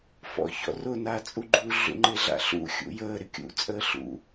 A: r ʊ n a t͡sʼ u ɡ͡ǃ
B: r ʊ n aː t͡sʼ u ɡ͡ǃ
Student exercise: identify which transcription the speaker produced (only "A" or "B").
B